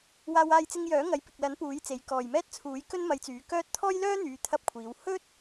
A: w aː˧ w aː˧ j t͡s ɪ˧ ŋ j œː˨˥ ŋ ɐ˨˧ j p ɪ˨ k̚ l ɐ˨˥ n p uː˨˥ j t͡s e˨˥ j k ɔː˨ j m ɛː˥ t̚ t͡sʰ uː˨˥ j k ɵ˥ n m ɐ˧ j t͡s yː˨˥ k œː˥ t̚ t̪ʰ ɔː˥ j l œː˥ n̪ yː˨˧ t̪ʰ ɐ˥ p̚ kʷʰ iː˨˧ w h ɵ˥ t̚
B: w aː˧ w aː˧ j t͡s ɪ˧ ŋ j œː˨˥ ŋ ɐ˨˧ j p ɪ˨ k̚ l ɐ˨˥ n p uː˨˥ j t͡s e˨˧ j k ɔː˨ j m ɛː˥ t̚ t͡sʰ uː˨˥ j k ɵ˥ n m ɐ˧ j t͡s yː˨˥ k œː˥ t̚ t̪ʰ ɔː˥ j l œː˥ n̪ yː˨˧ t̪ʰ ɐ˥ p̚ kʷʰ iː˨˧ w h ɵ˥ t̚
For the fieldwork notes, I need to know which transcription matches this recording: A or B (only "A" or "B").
B